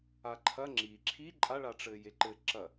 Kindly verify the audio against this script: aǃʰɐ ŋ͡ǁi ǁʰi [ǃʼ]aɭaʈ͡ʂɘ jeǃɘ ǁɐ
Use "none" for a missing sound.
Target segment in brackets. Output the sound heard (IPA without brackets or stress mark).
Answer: ǃʼ